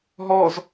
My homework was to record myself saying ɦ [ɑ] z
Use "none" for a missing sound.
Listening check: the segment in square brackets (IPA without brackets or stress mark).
ɔ